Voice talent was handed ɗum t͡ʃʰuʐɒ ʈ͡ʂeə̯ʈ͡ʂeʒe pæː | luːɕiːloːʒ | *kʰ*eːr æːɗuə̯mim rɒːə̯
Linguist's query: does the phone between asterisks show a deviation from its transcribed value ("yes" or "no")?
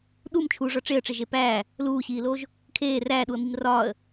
no